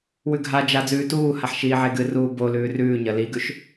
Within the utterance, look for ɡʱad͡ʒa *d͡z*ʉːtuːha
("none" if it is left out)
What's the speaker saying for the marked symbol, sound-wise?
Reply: d͡z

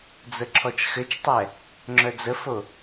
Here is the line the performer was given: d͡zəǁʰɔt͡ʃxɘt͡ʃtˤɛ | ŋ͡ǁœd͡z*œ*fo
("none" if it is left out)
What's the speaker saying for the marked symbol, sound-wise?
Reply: ə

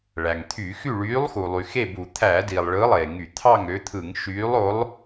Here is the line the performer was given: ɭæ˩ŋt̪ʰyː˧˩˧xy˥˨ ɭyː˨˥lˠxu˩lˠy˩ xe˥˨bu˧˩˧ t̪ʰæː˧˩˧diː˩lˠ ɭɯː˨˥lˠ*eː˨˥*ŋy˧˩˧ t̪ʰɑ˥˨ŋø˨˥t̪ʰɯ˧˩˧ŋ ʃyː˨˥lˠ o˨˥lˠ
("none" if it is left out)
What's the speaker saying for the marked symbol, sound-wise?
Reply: eː˩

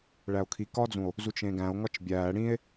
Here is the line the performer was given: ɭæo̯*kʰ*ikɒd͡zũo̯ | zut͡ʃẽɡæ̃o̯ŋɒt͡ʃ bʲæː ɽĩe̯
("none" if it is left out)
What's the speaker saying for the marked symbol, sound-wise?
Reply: kʰ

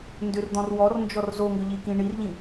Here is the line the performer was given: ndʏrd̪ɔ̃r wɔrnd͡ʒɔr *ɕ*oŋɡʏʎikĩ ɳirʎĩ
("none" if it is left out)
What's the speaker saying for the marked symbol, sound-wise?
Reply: z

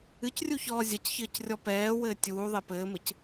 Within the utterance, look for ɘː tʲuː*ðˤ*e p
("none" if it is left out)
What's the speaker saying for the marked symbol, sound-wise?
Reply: ðˤ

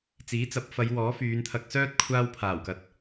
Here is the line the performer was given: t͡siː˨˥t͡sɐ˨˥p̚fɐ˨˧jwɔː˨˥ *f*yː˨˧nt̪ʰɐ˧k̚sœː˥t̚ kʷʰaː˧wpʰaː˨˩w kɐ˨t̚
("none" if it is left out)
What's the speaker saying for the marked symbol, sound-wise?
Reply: f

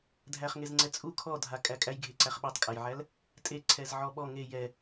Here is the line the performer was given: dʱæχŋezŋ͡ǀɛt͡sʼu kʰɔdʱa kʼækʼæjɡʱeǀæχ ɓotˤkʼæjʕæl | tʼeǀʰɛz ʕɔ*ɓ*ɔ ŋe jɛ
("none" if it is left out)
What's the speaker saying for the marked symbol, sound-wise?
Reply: ɓ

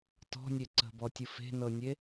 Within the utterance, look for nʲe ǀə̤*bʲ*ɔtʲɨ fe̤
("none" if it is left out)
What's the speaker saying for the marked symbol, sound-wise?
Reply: b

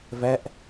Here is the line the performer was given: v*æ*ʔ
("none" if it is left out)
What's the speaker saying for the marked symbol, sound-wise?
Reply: æ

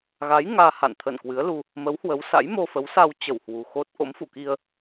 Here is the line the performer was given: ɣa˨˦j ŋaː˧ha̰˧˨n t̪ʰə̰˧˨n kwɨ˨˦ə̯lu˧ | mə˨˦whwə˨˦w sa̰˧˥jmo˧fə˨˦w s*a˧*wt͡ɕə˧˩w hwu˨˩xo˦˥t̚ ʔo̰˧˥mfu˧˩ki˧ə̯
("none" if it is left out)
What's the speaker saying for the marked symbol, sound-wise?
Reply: a˧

